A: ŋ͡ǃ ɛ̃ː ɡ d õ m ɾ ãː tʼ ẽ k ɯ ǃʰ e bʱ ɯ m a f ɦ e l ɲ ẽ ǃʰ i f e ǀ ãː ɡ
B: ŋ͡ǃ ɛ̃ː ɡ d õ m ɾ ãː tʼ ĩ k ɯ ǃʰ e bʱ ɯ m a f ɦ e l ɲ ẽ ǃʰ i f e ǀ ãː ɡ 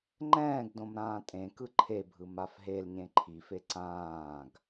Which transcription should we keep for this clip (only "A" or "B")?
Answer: A